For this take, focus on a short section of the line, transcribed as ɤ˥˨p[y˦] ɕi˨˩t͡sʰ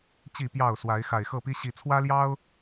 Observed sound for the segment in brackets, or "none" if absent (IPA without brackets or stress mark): i˦